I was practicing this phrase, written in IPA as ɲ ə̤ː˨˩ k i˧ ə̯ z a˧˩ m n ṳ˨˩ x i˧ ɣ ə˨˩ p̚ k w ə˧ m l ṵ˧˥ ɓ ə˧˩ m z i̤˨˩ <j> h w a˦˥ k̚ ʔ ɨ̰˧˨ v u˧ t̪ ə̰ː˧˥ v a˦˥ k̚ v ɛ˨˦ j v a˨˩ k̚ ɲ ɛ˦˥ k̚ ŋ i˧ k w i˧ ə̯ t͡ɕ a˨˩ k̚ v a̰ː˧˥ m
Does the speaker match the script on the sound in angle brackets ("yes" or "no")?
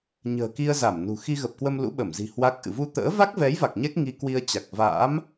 no